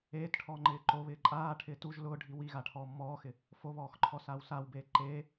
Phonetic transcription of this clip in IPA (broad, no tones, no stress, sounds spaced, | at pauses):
eː t ʈʰ ɔː ŋ͡ǃ ɪː ǃ o β ɪː ǃʼ aː ʈʰ ɪː t u ʒ l ʊː ɖʱ i w i ɣ a ʈʰ ɔː mː ɔː x ɪ | f o β ɔː x ǃʰ ɔ s aː w s a w b eː ǃ eː